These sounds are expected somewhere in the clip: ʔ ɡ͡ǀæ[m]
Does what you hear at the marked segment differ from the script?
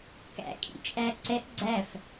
yes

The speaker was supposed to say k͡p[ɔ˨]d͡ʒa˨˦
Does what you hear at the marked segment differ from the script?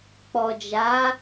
no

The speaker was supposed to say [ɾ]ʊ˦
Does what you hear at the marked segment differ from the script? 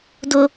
yes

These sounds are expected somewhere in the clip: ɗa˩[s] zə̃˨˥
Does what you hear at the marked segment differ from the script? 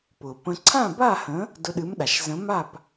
yes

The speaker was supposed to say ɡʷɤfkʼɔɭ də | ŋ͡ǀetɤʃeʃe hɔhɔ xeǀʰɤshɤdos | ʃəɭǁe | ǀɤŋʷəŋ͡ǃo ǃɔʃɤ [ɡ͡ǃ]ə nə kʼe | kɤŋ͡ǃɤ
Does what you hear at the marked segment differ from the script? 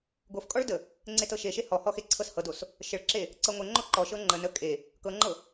yes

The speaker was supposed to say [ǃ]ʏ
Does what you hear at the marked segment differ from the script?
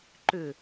no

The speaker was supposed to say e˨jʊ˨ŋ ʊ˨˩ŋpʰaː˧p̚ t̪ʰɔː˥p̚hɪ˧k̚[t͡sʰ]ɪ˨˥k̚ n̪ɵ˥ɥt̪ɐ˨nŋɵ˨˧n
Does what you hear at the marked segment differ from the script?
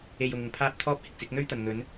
yes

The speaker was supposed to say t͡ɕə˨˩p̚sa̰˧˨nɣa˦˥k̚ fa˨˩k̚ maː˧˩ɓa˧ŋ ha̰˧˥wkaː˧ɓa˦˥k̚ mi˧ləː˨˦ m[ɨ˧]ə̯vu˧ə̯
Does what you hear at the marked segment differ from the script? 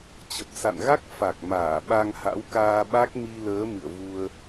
yes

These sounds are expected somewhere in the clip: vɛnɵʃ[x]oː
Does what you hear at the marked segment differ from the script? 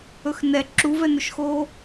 no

